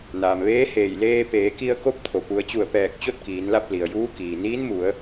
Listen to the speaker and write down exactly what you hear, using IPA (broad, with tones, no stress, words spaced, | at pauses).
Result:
naː˩mʋeː˧˥heː˧˩j leː˧peː˩˧ki˧ə̯ ko˧˥p̚t̪ʰo˩pu˩˧ə̯t͡ɕu˧˩ə̯ pɛː˧˩k̚ t͡ɕo˥˨t̚kiː˩˧nla˥˨p̚ li˩ə̯juː˧˥kiː˩ niː˧˥nmu˩˧ə̯